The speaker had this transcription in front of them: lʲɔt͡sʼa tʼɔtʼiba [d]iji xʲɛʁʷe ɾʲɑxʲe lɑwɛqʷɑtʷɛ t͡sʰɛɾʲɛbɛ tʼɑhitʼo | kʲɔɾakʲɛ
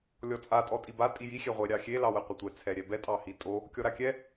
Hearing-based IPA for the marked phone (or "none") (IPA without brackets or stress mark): tʼ